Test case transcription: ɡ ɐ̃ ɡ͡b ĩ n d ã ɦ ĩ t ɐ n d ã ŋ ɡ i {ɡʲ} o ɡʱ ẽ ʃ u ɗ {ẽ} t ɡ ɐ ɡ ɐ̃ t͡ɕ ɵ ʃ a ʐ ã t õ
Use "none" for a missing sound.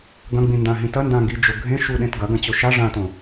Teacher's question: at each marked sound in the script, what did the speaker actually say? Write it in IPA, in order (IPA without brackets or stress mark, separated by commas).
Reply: d͡ʒ, ẽ